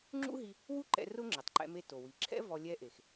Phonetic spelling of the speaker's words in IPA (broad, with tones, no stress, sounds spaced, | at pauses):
ŋ͡ǁ ṵ˥ ɦ i˧ | w u˥ ǃ ɛ̰˧ r ʊ˥ ŋ͡ǁ ɪ˩ tˤ ǃ ɛ̰˧ m e˧ t o˩ w i˩ ǁʰ ɛ̰˥ v ɔ˧ lʲ ɛ˧ ʔ e˩ x